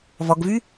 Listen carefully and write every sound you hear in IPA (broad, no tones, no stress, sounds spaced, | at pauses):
v ɔ ɡ v y